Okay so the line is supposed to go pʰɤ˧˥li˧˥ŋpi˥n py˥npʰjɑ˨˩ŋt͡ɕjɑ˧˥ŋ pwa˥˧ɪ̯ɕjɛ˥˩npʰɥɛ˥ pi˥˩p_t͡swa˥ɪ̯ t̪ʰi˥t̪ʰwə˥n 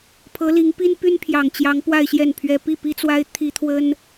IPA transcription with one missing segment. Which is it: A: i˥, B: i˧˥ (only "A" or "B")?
A